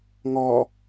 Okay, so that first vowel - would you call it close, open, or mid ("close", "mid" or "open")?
mid